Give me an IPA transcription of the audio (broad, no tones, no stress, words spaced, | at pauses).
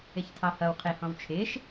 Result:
ɪçtʰɑhʌw qʰɪːhɔ̃wt͡ʃʰɪːʃ